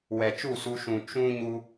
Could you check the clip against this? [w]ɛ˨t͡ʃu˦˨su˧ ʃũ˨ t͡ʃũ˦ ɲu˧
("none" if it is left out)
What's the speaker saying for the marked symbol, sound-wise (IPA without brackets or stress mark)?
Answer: w